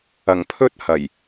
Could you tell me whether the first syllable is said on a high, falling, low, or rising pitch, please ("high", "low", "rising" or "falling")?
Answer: low